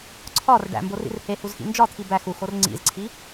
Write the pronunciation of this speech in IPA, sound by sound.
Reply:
ǀʰɒr ɖæ̰mborḭr hehuzxḭ nd͡ʒɒt̪ʰi bæx uxor ŋ͡ǀḭzǀʰi

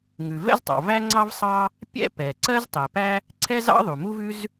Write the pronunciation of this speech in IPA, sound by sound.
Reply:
ŋʉ˩vɛ̰˥ztˤɑ̰˩ væ˥ŋ͡ǀɑ˥v sˤɑ˥ | pʲɛ̰˥pɛ˩ ǀɜ˥ztˤɛ˩pæ˥ | ǀʰɛ˥zɑ̰˥ ðˤu˩mu˥vʉ˥z

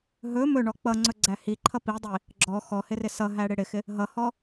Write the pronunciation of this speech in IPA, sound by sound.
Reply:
ɦɵ mɵɳɔ k͡pʌŋ͡ǀɵɡ͡ǀæ hiǃʰʌ pidˤi | ɡ͡ǁɔ xɔhɪrɪ sʌɦæɽɪ ɽɪxɪ | ɦʌhɔ

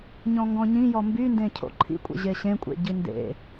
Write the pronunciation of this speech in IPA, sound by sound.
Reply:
ɲɔ̃ŋɡɔ̃ɲĩ jɔmbyndẽ cʰo̰ǃʰḭkʷʼḛ ʑeɕẽkʷʼḛ ɟindḛ

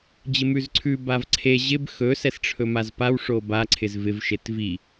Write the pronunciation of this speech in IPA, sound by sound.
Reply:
d͡ʑɪmʉzǀʰʉ bavǀʰe ʑɪb xɵ sɛsʈ͡ʂʰɵmazpaw ʂoba ǀʰɪzvɪv ʃetvi

